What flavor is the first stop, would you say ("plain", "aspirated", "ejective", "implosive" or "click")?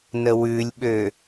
implosive